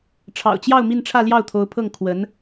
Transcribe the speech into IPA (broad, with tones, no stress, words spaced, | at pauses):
ʈ͡ʂʰɑ̰˨˩ʊ̯t͡ɕjɑ˥˧ʊ̯ mi˥˧nʈ͡ʂʰä˥˧ ljɑ˥˩ʊ̯t̪ʰo˧˥ʊ̯pʰɤ˥˩ŋ kʰwə˧˥n